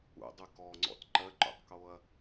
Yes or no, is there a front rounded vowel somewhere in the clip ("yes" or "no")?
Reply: yes